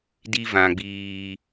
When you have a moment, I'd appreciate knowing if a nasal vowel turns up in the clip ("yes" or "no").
yes